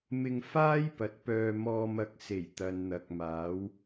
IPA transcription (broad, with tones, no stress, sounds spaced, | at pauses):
m ɪ˧ ŋ f aː˥ j p ɐ˨ t̚ p œː˧ m ɔː˧ m ɐ˧ k̚ s e˨˩ j t̪ ɐ˨ n n̪ ɐ˨ k̚ m aː˨˥ w